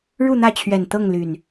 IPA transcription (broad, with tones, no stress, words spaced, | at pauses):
ɻu˥˨n̪ä˥˨t͡ɕʰɥɛ˨˩n t̪ɤ˥˨ŋ ly˨˩n